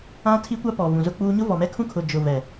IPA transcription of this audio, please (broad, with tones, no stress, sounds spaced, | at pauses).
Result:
ã˦ tʰ i˦ kʷ a˦ p ɔ˨ v ũ˨ z ʊ˦ k͡p uː˦ ɲ ʊ˦ v ɔ˨ m ɛ˦ kʰ ũ˦ kʰ ʊ˨ d͡ʒ ʊ˨ v ɛ˨